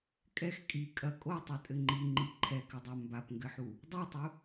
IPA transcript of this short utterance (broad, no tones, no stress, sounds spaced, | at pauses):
kʼ ɛ x kʼ i kʼ ɐ kʼ o tˤ u tʼ ɘ ŋ͡ǃ i ŋ͡ǃ i ǃʰ ɛ k ɘ dˤ a m b a p ŋ ɡ ɘ ħ u | dˤ u tˤ u